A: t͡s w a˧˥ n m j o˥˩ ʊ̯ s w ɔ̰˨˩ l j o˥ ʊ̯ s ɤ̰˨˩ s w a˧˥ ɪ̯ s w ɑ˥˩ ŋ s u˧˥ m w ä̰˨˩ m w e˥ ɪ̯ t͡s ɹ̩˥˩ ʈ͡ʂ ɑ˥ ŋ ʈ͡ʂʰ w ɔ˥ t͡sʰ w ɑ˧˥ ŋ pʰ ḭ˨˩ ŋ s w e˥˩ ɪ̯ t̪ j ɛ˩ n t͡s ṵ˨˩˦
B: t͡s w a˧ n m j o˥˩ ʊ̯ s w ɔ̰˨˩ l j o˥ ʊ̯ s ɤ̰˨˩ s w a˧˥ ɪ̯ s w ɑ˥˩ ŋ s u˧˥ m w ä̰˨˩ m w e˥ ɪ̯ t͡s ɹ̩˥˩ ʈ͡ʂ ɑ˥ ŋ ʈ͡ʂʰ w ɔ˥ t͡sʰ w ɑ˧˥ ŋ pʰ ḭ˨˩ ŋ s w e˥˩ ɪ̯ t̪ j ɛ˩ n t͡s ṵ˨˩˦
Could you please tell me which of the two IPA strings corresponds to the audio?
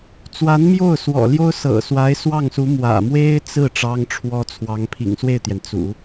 A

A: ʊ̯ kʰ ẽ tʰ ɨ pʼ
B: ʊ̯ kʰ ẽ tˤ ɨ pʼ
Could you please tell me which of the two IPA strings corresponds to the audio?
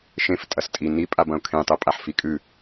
B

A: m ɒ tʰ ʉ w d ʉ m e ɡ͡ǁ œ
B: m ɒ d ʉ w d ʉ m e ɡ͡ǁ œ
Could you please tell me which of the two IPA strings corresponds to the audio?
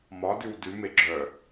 B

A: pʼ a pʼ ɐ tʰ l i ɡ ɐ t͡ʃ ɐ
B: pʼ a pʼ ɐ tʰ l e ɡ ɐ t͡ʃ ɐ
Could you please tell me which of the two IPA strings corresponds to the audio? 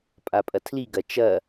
A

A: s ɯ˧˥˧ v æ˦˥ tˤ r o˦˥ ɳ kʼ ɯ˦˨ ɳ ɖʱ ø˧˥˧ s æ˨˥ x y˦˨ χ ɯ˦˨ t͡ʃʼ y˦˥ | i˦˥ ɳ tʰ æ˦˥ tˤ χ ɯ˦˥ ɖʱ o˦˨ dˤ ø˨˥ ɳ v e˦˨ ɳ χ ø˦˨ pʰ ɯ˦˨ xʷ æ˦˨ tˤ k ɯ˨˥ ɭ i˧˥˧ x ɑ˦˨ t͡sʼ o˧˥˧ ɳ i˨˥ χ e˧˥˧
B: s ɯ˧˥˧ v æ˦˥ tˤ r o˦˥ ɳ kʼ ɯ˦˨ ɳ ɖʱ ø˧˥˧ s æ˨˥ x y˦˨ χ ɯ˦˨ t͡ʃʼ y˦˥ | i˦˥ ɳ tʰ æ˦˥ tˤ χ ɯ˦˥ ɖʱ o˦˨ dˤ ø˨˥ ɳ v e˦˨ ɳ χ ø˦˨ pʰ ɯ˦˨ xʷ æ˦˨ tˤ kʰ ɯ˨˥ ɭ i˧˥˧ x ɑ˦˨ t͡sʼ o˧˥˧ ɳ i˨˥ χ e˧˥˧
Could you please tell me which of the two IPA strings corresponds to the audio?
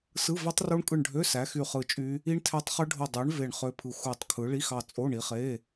B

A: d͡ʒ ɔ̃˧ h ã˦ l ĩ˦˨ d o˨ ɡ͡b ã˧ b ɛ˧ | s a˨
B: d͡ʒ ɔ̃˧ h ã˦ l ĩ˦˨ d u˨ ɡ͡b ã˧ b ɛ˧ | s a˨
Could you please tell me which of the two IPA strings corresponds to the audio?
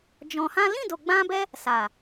A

